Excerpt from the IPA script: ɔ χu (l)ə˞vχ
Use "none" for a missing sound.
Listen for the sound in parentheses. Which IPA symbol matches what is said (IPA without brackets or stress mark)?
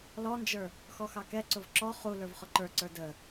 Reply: l